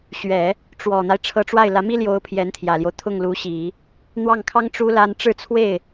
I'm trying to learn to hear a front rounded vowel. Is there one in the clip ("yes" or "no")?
no